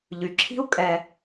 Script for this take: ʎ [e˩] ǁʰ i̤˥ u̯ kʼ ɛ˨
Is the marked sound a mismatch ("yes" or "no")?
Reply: yes